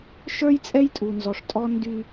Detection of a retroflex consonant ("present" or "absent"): present